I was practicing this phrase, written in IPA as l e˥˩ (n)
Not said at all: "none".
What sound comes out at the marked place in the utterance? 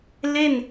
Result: n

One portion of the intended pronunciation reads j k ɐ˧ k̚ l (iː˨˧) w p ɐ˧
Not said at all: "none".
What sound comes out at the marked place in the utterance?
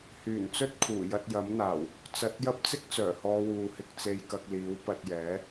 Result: iː˨˥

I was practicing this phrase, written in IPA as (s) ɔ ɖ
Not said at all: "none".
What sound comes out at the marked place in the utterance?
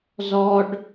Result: z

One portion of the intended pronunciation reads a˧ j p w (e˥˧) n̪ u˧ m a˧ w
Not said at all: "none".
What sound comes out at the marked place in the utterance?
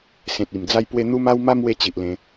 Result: e˧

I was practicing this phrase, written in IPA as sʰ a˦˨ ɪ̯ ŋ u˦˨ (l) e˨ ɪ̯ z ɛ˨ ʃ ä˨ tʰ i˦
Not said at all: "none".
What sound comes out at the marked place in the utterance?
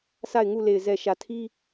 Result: l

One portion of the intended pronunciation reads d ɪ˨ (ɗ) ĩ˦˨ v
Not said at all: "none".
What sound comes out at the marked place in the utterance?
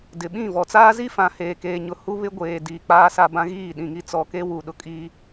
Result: ɓ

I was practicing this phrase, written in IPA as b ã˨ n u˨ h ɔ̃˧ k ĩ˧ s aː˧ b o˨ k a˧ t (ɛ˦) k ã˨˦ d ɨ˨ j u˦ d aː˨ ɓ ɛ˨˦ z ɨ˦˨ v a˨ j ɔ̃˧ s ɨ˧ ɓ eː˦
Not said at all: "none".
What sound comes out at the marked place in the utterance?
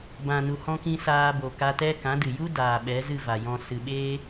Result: ɛ˦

